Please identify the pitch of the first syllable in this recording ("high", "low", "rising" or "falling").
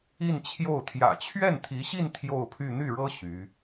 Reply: falling